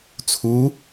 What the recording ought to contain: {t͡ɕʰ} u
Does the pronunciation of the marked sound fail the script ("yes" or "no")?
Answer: yes